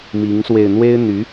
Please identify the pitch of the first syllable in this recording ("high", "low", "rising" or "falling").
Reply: rising